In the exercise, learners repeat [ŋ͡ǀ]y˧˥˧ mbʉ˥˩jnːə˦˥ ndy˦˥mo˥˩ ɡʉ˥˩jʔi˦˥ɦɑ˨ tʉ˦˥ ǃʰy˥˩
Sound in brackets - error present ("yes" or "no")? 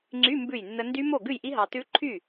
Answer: no